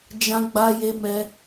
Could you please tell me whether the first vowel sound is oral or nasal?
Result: nasal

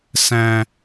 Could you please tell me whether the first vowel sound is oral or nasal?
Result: nasal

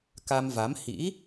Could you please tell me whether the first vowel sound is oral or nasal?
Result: oral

